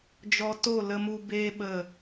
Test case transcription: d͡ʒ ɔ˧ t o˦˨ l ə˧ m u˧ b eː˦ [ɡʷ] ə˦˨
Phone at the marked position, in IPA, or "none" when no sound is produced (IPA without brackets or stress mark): ɓ